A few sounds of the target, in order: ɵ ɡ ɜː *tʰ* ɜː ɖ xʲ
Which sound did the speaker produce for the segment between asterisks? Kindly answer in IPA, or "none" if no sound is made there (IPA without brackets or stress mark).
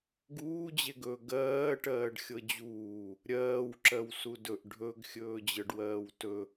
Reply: ʈ